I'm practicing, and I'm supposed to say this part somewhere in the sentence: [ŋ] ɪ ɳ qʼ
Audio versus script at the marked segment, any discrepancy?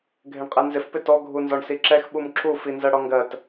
yes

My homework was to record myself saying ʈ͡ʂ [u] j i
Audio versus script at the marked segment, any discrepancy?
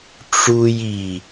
no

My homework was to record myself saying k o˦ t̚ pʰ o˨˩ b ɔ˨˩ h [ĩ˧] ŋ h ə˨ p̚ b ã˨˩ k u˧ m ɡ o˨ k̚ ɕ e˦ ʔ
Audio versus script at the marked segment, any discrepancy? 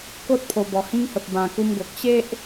yes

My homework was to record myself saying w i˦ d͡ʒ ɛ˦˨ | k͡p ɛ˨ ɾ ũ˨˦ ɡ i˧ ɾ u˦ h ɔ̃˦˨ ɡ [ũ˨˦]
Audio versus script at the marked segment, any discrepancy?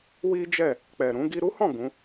no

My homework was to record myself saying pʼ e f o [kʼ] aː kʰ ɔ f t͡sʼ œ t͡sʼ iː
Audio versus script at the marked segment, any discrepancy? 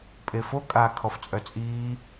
no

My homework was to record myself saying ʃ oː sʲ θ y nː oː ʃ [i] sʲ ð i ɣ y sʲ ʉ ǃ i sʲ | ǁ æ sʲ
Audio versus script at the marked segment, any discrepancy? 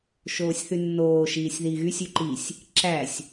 yes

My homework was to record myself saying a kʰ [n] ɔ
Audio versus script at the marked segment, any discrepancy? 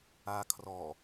yes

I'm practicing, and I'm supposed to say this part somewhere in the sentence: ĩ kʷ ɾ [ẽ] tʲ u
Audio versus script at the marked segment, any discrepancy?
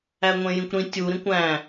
yes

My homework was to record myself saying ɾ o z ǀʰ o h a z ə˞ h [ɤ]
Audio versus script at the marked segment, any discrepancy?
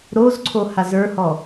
yes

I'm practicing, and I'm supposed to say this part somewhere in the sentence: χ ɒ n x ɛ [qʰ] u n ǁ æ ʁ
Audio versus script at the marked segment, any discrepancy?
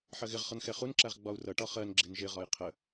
yes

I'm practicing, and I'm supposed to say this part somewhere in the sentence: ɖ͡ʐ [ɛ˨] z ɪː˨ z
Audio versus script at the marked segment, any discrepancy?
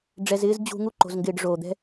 no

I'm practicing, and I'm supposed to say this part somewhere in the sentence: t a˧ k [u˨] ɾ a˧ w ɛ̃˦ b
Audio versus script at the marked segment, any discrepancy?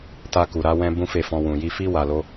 no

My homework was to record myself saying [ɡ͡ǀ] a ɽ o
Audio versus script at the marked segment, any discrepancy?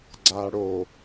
no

